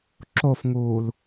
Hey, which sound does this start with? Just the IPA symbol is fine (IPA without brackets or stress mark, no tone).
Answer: ǁ